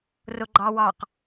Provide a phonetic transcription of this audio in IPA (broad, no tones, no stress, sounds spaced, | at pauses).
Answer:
r ʊ ɡ͡ǃ ɑ w ɑ q